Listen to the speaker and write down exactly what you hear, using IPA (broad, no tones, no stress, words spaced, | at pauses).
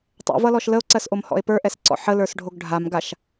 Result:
tˤɛ̰vʌlɔʃ ləo̯ǀɜsʔomhɔ̰e̯ pə˞ʔɛsǀɔ̰ ħələ˞sɖʱoɡ ɖʱamɡaʃ